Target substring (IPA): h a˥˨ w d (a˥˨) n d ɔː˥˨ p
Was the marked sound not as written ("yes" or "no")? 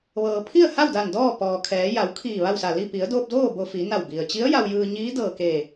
yes